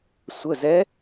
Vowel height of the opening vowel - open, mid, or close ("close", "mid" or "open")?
mid